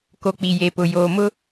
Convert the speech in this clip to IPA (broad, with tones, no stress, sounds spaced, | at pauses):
k o˨ k͡p i˨ j e˨ p ʊ˨ j oː˨ m ʊ˦